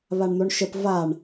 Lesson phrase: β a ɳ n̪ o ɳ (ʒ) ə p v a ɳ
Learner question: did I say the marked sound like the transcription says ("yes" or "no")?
no